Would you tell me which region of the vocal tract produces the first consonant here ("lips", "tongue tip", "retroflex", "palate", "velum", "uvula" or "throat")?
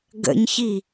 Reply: velum